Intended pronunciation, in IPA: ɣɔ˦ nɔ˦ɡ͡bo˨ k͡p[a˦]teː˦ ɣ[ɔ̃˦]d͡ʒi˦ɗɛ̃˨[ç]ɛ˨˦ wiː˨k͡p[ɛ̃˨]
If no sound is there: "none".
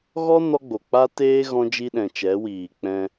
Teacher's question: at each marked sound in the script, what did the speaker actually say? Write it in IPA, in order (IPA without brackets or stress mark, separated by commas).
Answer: a˦, ɔ̃˦, t͡ʃ, ɛ̃˧